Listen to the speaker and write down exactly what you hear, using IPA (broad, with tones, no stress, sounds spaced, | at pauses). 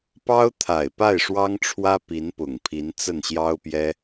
p ɑ˥ ʊ̯ t̪ʰ a˨˩ ɪ̯ p a˥˩ ɪ̯ ʂ w ɑ˥ ŋ ʈ͡ʂʰ w ä˥ p i˧˥ n p ʊ˨˩ ŋ pʰ i˧˥ n t͡s ə˥˩ n ɕ j ɑ˥ ʊ̯ p j ɛ˥